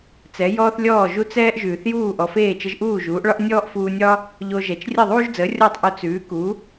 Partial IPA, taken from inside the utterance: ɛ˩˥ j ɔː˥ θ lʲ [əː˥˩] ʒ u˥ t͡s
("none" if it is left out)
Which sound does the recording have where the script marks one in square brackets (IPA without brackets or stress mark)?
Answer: ɔː˥˩